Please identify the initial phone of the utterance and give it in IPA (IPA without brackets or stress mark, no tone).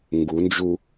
ŋ